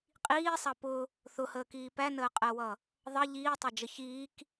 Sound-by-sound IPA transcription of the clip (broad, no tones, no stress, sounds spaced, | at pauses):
qʼ iː sˤ ɑ p ʊ | θ ʊ h əː k iː p æ n əː qʼ ɜ w ʌ | ðˤ ʌ ʎ iː tˤ ɜ d͡ʒ ə ç iː k